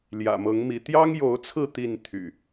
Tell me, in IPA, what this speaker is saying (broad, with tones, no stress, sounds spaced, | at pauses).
l j ä̰˨˩ m ɤ˨˦ ŋ m i˨˦ t̪ j ɑ˦ ŋ j o˨˦ ʊ̯ t͡sʰ ɹ̩˥˨ t̪ i˥˨ n t̪ʰ y̰˨˩